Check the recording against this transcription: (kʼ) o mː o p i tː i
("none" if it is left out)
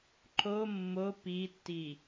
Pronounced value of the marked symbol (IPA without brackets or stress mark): ǃ